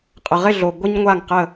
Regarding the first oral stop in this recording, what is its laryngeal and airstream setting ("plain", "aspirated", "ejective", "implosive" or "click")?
ejective